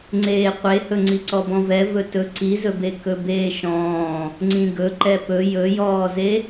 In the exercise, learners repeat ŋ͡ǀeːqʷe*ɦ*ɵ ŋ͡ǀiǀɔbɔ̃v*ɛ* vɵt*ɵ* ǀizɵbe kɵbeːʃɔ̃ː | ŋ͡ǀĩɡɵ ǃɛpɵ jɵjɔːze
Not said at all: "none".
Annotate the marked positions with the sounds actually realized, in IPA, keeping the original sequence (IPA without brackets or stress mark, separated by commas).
h, ɛ, ɵ